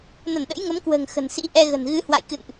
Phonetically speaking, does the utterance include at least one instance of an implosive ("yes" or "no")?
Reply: yes